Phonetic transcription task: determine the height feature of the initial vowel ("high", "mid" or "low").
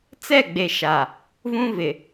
mid